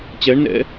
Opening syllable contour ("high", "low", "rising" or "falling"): rising